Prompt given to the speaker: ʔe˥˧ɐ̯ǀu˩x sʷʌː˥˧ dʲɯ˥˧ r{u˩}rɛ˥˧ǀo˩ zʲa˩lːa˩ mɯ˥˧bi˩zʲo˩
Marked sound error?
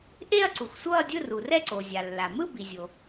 no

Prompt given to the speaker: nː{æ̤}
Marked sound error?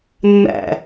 yes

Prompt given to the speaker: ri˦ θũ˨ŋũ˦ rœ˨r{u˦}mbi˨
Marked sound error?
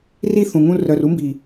no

